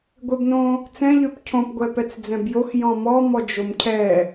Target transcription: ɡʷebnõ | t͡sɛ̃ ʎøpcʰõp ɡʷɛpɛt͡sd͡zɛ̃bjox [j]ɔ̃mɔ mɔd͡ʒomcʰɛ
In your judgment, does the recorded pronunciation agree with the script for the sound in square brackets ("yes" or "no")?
yes